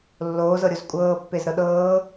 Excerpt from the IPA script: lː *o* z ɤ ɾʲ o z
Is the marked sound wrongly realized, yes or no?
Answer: yes